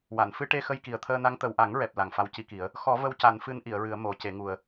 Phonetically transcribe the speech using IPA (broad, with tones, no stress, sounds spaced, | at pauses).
w a˨˩˨ n f ɨ˧ ʈ e˧ x ə˧ j k i˨˩ ə̯ t̪ʰ əː˧ n a˧˥ ŋ t̪ ə˨˩ w ʔ a˨˩˦ ŋ ɹ ɛ˨˩ p̚ l a˨˩ ŋ f a˧˥ w c i˧ k i˨˩˦ ə̯ | x ɔ˨˩˦ v ə˧ w c a˨˩˦ n f ɨ˧˥ n ʔ i˨˩˨ ə̯ ɹ ɨ˨˩˦ ə̯ m o˨˩˦ c e˨˩˦ ŋ u˨˩ ə̯